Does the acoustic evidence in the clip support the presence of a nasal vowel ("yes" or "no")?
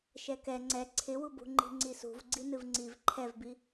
no